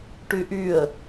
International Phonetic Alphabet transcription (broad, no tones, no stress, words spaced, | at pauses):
ʈyʔyə̯